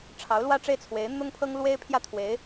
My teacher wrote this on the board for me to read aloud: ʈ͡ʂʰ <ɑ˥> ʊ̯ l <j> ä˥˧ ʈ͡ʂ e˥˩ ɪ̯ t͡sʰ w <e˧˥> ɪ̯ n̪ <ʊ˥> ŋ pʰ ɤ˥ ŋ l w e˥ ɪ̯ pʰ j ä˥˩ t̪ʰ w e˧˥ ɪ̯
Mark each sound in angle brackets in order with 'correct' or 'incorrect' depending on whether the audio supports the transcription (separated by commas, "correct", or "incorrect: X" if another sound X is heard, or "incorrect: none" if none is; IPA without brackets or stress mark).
incorrect: ɑ˧˥, incorrect: w, correct, correct